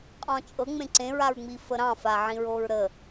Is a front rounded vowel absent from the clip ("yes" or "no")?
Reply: yes